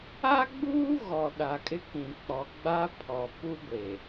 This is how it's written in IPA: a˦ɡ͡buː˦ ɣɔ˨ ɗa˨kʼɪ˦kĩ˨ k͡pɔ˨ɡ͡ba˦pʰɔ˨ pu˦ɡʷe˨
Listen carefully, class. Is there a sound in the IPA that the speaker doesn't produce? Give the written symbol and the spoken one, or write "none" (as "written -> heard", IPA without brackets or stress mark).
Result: none